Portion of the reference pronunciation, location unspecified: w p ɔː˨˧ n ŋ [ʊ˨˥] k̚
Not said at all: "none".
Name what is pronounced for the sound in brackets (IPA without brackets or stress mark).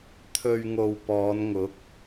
ʊ˨˥